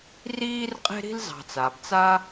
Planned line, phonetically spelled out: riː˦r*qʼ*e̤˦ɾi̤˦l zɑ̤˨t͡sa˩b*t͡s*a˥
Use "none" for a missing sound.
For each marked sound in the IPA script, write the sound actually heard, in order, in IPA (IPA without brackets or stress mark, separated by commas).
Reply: qʼ, t͡s